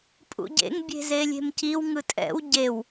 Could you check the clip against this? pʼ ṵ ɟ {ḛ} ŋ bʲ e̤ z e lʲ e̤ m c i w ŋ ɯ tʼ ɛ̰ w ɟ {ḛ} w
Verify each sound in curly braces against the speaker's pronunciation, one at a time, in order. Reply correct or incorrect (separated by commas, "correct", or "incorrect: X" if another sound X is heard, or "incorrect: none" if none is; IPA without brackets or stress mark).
correct, incorrect: e